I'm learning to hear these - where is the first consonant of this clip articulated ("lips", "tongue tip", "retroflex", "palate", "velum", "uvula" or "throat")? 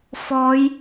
lips